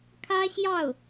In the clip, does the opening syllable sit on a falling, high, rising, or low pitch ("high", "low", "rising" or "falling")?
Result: high